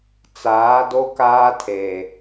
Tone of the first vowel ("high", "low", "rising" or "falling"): rising